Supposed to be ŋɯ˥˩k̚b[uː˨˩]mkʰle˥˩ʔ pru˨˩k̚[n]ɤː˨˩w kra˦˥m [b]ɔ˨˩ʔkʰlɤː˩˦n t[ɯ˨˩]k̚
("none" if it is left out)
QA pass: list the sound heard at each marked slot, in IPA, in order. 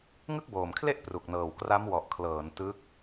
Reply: oː˨˩, n, w, ɯ˦˥

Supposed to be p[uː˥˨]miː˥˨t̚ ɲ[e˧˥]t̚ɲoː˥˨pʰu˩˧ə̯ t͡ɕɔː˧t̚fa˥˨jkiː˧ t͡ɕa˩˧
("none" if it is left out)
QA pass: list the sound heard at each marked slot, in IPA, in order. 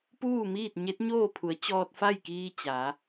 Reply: uː˥˨, e˧˥

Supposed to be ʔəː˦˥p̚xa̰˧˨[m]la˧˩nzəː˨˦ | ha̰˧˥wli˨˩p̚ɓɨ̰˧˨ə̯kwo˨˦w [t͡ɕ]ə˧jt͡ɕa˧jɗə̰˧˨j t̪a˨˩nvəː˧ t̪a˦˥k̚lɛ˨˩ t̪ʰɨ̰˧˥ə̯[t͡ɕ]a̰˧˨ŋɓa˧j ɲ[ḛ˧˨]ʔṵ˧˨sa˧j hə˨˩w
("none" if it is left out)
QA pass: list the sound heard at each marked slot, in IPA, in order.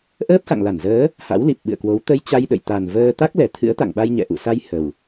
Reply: ŋ, t̪, t̪, ɛ̰˧˨

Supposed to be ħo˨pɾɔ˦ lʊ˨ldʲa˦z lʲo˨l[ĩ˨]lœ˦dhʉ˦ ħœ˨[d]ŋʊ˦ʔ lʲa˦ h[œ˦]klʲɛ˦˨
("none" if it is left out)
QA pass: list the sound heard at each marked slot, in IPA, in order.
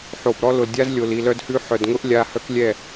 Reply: i˨, d, œ˦

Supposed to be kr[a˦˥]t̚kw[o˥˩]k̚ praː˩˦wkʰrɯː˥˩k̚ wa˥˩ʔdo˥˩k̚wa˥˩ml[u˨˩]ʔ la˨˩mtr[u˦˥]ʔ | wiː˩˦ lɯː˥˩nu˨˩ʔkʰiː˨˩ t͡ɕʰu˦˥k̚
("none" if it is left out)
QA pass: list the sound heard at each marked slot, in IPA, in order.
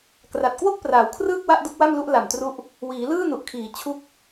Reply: a˨˩, o˥˩, u˦˥, u˦˥

